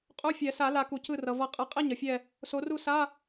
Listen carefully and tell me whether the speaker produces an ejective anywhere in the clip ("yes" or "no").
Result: yes